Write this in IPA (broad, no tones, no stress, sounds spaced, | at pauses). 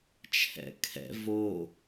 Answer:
t͡ʃʰ ɛ̰ kʰ ɛ̰ v o